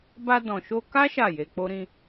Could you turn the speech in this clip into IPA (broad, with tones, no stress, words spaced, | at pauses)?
ba˧ dɔ̃˨ʃo˧ka˦ ʃa˦˨je˧k͡po˦ɾĩ˦